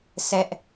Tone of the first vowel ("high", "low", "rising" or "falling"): high